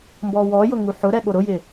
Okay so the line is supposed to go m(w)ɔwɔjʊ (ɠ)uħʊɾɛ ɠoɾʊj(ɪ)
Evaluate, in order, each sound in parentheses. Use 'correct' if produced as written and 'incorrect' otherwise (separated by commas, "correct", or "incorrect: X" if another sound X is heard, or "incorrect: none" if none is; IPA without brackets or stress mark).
incorrect: b, incorrect: ŋ, correct